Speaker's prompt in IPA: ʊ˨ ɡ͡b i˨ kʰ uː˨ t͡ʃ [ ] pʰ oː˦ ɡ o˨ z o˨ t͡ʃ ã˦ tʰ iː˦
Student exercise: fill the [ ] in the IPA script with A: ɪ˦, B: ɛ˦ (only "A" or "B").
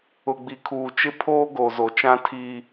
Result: A